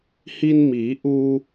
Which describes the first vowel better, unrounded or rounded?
unrounded